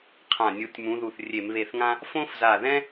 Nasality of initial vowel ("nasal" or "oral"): nasal